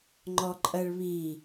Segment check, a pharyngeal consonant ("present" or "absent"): absent